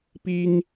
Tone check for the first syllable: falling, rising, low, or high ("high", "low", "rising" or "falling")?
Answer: high